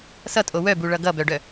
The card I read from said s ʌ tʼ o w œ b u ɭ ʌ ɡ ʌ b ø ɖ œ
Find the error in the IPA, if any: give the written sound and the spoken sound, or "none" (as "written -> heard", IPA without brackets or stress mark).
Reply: ø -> œ